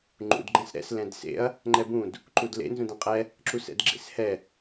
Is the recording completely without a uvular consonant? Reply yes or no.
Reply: no